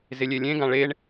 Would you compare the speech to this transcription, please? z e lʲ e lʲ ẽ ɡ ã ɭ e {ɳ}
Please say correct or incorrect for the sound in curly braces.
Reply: correct